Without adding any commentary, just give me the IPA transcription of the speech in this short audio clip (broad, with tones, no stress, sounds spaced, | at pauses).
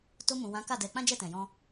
t o˧ m ũ˨ w ã˨˦ k a˦˨ d ɛ˨˦ k͡p ã˦ d͡ʒ ɛ˦˨ t ɛ̃˨ j ɔ̃˧